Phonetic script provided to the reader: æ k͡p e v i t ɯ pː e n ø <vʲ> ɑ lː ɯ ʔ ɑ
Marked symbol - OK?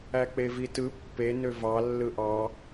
no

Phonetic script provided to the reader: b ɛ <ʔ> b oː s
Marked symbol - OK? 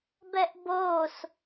yes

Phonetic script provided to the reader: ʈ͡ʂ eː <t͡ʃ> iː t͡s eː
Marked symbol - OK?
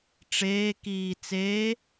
no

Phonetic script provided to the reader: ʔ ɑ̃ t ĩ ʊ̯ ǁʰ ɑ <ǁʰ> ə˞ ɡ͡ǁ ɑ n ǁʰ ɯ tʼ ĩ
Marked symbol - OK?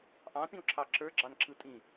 yes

